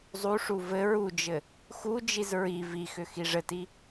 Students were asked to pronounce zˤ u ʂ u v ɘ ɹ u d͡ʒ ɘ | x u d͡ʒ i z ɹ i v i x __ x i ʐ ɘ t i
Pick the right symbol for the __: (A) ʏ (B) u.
A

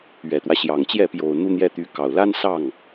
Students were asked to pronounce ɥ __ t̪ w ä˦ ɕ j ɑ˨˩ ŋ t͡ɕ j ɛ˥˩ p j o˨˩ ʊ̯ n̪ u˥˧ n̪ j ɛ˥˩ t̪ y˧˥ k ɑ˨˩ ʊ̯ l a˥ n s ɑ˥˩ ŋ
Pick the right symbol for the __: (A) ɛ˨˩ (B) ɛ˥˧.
A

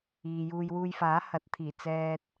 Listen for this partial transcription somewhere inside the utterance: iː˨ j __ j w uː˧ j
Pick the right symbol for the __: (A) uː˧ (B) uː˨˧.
A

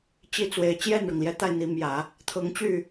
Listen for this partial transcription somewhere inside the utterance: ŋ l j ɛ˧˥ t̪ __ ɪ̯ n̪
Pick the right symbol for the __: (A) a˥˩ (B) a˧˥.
A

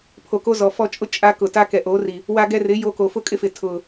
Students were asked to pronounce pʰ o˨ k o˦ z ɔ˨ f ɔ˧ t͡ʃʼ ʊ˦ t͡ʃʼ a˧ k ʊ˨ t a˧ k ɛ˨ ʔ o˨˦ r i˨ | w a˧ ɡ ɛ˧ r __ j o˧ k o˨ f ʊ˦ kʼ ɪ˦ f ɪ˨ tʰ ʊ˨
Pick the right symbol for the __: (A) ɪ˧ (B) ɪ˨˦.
B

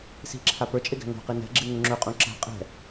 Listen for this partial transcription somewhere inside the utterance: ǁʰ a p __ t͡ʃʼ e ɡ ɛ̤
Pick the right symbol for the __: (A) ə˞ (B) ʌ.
A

